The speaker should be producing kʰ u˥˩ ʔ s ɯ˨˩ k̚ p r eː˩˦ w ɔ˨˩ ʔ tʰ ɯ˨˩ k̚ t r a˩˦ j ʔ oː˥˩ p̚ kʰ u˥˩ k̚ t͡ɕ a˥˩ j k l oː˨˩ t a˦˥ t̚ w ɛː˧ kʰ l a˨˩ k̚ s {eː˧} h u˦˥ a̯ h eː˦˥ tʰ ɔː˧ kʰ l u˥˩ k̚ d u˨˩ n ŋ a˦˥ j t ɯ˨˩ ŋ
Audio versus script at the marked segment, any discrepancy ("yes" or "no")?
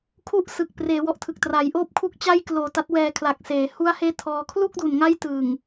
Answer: yes